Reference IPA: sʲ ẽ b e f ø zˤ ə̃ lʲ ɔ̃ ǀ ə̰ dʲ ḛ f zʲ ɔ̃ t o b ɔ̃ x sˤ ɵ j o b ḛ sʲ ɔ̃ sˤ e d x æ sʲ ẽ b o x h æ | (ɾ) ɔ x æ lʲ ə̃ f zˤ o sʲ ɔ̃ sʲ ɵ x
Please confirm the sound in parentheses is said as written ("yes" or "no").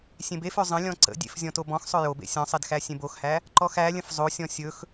no